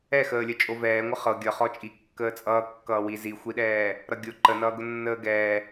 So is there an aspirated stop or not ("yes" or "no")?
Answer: no